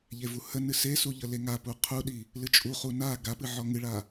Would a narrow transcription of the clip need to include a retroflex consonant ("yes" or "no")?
yes